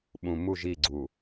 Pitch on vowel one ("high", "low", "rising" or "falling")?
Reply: low